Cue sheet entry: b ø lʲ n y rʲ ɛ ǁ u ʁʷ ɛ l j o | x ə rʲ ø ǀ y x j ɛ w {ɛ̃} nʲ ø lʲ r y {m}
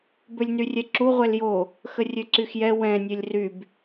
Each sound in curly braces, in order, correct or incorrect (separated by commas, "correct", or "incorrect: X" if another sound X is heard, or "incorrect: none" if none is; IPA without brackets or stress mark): correct, incorrect: b